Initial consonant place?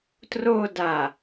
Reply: alveolar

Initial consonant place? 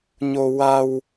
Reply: palatal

